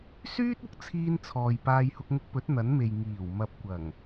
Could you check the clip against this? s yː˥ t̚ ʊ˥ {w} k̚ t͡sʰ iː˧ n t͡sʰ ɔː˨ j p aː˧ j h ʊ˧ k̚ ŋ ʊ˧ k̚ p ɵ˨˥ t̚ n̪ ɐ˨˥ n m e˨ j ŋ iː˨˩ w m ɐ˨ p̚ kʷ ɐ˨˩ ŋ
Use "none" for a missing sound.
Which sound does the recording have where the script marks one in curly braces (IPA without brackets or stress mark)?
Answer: none